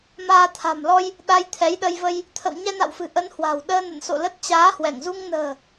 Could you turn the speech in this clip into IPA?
m aː˧ t̪ʰ a̤˨˩ m l ɔ˧ j | ɗ a˧ j t̪ʰ ɛ˨˦ j ɗ ə˧ j v ə˧ j | t̪ʰ ə̰˧˨ w ɲ ɛ˧ n a̰˧˨ w f ɨ̤˨˩ ʔ ə˨˦ n h w a̤˨˩ w ɗ əː˧ n ə̰˧˨ n s o̰˧˨ l ə˦˥ t̚ t͡ɕ aː˨˦ h w ɛ˧˩ ŋ z u˧ ŋ n ə̤ː˨˩

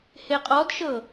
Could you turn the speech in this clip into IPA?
h e qʼ ɔ d ʃ ɤ

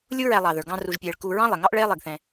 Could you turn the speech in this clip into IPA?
lʲ u˦ ɹ æ˨ lˠ ɑ˩ ð ə˞˩ ɡ ɑ̃˨ r u˨ ʒ pʲ ɛː˨ ɭ k u˨ ɹ ɑ̃˥ lˠ ɛ˩ ŋ ɑ˥ ʔ ɭ ɛː˥ lˠ ɪː˨ ɡ θ ɛ̃˨

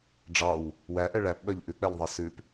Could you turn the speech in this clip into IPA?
ɖ͡ʐ ɑ w | w æ ʔ ɛ ɭ æ p ɓ œ ʎ ʔ ʉ k͡p ɛ ʎ ðˤ æ s ʉ p

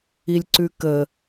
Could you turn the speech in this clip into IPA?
i lʲ ǀ ʉ k ə

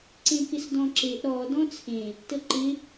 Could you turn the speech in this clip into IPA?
ǀ ẽ k ɪ s d ɔ̃ ǁ e ʔ ɾ ɔ d ɔ̃ t͡sʰ ẽ | t ə ǃ ɪ

